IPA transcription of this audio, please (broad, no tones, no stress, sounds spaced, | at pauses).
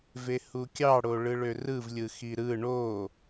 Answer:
v e h u kʲ ɑ ɽ o ɭ ɯ ɭ ø r ɯ v lʲ ɯ x i ɾ ɯ ɳ o